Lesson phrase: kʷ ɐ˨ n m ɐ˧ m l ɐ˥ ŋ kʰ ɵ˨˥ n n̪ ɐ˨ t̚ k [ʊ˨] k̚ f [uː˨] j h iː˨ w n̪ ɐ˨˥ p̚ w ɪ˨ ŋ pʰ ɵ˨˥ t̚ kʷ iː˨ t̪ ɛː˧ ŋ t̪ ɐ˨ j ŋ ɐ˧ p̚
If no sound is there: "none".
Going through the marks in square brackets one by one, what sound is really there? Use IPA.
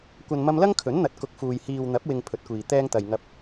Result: ʊ˨, uː˨

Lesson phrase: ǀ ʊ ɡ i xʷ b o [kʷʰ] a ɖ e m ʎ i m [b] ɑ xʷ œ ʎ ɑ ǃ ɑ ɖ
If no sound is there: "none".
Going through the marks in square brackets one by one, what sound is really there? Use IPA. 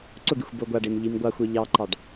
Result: ɡʷ, ɡʷ

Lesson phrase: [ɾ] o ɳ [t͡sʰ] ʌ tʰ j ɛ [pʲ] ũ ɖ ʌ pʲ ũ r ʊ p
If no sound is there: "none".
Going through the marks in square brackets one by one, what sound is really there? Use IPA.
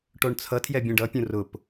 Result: ʈ, t͡sʰ, bʲ

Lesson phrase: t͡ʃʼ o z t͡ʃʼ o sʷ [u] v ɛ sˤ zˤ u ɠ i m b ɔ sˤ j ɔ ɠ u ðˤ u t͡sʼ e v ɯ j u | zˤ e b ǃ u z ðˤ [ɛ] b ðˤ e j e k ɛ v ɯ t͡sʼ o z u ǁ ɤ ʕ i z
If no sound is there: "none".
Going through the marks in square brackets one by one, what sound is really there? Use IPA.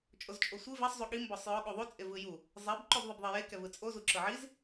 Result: ɯ, ɛ

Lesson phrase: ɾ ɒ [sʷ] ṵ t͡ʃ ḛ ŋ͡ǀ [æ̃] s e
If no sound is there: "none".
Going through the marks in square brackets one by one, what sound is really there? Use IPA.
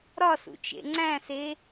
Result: s, æ̃

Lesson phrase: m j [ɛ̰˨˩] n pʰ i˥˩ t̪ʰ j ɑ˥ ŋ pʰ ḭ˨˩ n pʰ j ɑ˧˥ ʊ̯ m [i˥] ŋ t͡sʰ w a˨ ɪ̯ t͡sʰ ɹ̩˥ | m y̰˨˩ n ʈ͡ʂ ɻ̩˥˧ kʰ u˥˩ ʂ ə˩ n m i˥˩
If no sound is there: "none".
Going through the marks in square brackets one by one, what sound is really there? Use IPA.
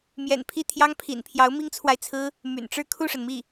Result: ɛ̰˨˩, i˥

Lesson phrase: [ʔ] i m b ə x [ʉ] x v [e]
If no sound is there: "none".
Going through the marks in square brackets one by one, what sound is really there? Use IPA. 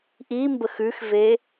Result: ʔ, ʉ, e

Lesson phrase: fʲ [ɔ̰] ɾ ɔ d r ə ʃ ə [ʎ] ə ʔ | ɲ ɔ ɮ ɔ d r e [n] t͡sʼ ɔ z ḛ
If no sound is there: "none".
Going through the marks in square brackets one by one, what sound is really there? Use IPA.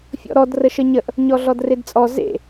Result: ɔ̰, ɲ, d

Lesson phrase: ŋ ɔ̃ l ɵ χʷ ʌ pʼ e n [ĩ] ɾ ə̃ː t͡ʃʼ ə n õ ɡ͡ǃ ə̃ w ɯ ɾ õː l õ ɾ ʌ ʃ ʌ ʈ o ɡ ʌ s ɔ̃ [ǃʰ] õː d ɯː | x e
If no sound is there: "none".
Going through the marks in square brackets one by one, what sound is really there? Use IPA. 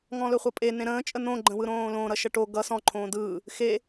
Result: ẽ, ǃʰ

